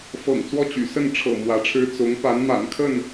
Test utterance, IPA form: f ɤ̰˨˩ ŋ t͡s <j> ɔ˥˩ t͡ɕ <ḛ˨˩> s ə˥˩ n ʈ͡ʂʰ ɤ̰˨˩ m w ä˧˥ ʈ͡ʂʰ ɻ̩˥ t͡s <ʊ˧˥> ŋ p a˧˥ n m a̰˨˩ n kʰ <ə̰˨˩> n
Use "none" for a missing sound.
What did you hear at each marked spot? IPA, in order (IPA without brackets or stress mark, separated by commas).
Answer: w, y̰˨˩, ʊ˧˥, ə˥˩